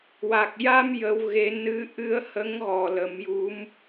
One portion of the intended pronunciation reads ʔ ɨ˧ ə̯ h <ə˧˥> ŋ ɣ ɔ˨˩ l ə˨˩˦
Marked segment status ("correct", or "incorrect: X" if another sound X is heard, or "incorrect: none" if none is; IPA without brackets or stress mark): correct